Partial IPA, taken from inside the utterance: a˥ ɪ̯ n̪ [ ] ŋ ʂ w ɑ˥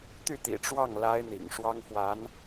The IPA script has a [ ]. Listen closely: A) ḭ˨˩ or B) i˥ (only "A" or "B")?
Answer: A